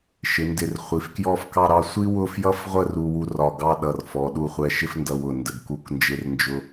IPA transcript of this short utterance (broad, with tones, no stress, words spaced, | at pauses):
ʃɪ˩˧ndɪ˧˩r χʷi˩˧fkjɔ˥˧fkɑ˥˧ɾɑ˥˧ sʷi˥wʊ˥˧fjʌ˥˧fʁʷə˥˧r u˥wu˥ rɒ˧˩ɡɑ˥˧ɗʌ˧˩rfɔ˩˧ ɗu˥˧χʷɛ˥ ʃɪ˥fndʌ˧wʊ˧˩ ndə˧˩ɡku˥˧knd͡ʒɪ˥rnd͡ʒʊ˥